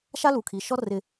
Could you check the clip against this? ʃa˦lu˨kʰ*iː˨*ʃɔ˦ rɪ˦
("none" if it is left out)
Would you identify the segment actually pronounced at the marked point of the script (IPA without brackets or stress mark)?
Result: i˨